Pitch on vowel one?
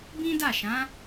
high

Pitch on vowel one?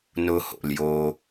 high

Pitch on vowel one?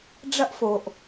high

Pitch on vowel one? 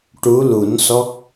rising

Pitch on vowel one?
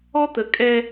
high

